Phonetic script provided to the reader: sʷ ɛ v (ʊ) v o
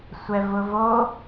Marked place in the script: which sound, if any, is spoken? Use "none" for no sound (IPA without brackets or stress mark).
ʊ